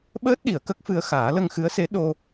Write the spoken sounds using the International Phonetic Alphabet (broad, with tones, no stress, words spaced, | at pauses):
ɓəː˦˥t̚ɗi˨˩˨ə̯ kə˦˥k̚fɨ˧ə̯ xaː˨˩˦lə˧ŋxɨ˧˥ə̯se˧˥ ɗo˧